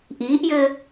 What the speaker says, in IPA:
ʔiːʔjɘː

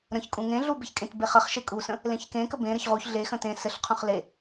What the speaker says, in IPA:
ɾə̃çkʼũ ŋẽɮu beçkʼẽtbe χəχ ʃekʼusə̃ | lẽçkẽkə bẽɾɘç ʁuç ɮexə̃ tẽ sɘɬqʰũχ le

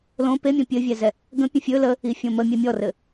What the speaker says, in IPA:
lõ pemʲõ pʲɘvʲɛzɛ | ɡə̃ pʲə̃fʲɵ lə | ifʲõmə mʲɛmʲɔrɘ

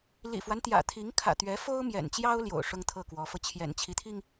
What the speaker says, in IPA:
lḭ˨˩fwa˦nt̪jä̰˨˩ t̪ʰi˧˥ŋkʰä̰˨˩t̪ɥɛ˧˥ fo˥ʊ̯mjɛ̰˨˩nt͡ɕjɑ˥ʊ̯ ljo̰˨˩ʊ̯ ʂʊ˥ŋt̪ʰɤ˥˩kwɔ˧˥fɤ˧ t͡ɕʰjɛ̰˨˩nt͡ɕʰi˧˥t̪ʰi˧ŋ

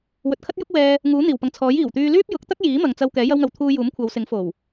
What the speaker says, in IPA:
wɵ˨t̚kʰɐ˥t̚jʊ˥k̚wɛː˧ | ŋuː˨˥n̪iː˨˩wpɐ˨ŋt͡sʰɔː˨˥j iː˨˩wt̪yː˧ lyː˥p̚jʊ˨˥k̚t̪ɐ˥k̚ jiː˨˥mɐ˨ŋt͡sɐ˧w kɛː˨˥jɐ˥wŋɐ˧w t̪ʰuː˧ juː˨˥mkʷʰɐ˨˧wsɪ˨˥ŋ fo˨˩w

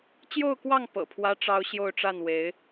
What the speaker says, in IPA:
t͡ɕjo˥˧ʊ̯kwɑ˥˩ŋ pɤ̰˨˩pʰwä˥ʈ͡ʂɑ˥ʊ̯ ɕjo˥˧ʊ̯ʈ͡ʂa˥˩n we˧˥ɪ̯

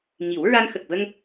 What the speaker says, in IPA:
ŋi˨˩˦w ɹa˧nxə˨˩k̚və˧ŋ

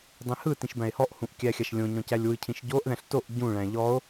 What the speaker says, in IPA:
dˤĩhɯtĩʃ bæ̃e̯hɔʔhũʔ kʲæxʲaʃlʲõɲɔ̃ cælʲwɯcʰĩʃ ɟoʔðæ̃ɬ toʔ ɟũɭæ̃ ʎɔo̯

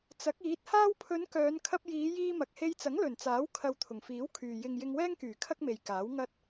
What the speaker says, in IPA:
t͡sɐ˨˥k̚iː˨˥t̚ haː˧wpʰɵ˨˧n kœː˨˧nkʰɐ˧p̚jiː˨˧ jiː˧mɐ˨k̚he˧jt͡sɐ˨˥ŋ lɵ˨˩nt͡saː˨˥w kʰɐ˧wt̪ʰʊ˨˩ŋfiː˨˥wkʰyː˨ jɪ˨ŋ jɪ˧ŋwɛː˥ŋkyː˨˩ kʰɐ˥k̚me˨jkaː˨˥w ŋɐ˧t̚

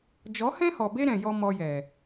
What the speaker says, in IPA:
d͡ʒɔ˨˦hɛ̃˦hɔ˨be˦ ɾɛ̃˧jɔ˦ mɔ˧jɛ˨

